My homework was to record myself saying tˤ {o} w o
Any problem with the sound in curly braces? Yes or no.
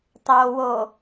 no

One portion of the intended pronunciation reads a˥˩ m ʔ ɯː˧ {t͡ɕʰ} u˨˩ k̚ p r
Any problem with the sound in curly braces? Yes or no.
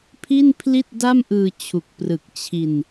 no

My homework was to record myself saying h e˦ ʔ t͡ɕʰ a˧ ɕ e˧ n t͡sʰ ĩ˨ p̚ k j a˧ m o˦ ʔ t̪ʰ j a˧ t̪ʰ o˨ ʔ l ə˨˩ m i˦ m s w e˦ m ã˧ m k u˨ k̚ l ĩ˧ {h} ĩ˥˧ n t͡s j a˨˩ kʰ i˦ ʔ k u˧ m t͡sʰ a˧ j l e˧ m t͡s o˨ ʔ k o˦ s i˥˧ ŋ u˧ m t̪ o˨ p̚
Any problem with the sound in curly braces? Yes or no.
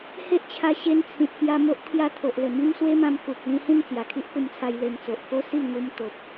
no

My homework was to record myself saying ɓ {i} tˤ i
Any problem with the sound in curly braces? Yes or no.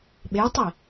yes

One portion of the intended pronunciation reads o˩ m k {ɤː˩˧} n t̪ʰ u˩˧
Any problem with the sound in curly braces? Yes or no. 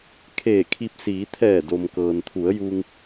yes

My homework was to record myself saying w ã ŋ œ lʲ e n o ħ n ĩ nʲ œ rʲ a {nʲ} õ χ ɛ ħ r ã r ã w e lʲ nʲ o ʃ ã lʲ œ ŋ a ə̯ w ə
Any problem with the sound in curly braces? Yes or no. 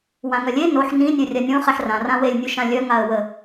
no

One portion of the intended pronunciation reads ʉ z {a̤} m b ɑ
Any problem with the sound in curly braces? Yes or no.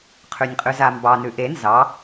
yes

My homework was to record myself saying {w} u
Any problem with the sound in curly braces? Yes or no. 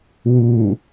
no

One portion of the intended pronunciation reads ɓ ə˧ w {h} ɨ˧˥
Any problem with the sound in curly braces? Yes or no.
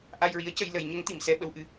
yes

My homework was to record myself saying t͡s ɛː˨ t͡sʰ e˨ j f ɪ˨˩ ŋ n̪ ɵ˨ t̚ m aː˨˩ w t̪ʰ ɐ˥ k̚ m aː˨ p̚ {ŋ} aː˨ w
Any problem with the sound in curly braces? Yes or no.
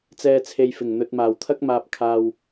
yes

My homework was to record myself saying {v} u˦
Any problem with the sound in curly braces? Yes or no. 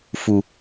yes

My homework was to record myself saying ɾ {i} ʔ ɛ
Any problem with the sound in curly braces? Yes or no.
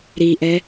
no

